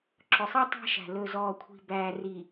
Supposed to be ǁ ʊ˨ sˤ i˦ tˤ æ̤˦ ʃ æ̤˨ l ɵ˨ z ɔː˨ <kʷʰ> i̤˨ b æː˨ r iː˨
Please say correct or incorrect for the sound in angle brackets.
correct